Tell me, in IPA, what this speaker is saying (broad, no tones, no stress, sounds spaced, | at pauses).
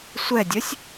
sʷ ɛ dʲ œ sʲ